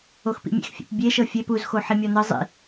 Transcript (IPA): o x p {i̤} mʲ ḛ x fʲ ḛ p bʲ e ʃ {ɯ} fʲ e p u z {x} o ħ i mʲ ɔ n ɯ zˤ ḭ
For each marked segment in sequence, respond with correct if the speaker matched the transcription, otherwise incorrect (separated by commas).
incorrect, incorrect, correct